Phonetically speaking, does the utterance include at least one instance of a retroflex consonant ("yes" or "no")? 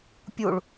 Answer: yes